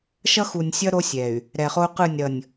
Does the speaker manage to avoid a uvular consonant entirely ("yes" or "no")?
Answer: no